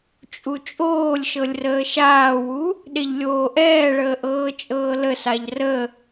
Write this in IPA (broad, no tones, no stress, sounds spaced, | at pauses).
t͡ʃʼ u t͡ʃʼ oː lʲ ʃ ɤ lʲ r əː ʃ aː w u | ɗ e ʎ lʲ oː ʔ ɛː ɭ əː ʔ ɤː t͡ʃʼ ɤː l ə s a ʎ r ə